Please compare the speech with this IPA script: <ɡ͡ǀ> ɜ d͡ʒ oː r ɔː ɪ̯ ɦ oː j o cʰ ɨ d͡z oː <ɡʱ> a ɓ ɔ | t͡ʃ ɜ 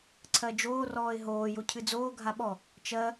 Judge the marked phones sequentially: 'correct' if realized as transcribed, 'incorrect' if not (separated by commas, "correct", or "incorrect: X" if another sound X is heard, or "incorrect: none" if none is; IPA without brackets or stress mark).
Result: incorrect: ǀʰ, correct